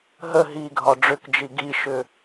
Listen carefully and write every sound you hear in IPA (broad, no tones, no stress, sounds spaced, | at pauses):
ɦ ə ɦ i ɡʱ ɒ ɖ͡ʐ ʏ k d͡ʒ i ɡ i ʃ ʏ